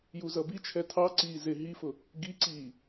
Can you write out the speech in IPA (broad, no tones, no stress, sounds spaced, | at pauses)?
j u z ʌ b i t͡ʃʰ ɛ tʰ ɑ ǀ iː z ɪ ɦ i f ʊ | ɡ i ǀ iː